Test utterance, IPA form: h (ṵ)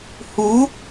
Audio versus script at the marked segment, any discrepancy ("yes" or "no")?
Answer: yes